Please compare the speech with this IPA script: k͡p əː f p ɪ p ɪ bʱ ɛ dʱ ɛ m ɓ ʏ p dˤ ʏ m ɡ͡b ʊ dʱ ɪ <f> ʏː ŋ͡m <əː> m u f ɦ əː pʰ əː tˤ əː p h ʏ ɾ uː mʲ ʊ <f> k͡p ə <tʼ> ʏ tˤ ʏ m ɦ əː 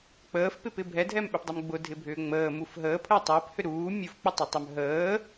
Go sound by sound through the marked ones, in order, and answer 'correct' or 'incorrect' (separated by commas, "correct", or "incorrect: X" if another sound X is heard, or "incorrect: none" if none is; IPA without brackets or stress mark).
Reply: incorrect: bʱ, correct, correct, incorrect: tˤ